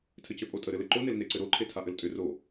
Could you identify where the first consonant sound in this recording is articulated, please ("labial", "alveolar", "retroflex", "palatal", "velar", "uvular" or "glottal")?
alveolar